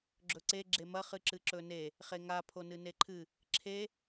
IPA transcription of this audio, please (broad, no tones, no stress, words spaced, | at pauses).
ɡ͡ǁɵǀe ɡ͡ǁemɐ χɨǁɨǁɵne | χeŋa pʰonɨneǃʰɨ | ǁʰe